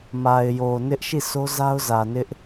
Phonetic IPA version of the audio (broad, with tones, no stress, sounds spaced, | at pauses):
m a˨ ɪ̯ j o˨ n ɪ˦ ʔ ʃ i˦˨ sʰ o˦ z a˦ ʊ̯ z ä˨ n ɪ˦ ʔ